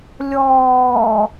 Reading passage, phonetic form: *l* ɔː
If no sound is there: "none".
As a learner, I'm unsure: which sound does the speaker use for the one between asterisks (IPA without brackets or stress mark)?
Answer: lʲ